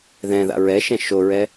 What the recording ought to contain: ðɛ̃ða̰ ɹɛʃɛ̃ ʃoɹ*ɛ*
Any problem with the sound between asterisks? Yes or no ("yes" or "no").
no